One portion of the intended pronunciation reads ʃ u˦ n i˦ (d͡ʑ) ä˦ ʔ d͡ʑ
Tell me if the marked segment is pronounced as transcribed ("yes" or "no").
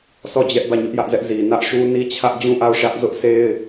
no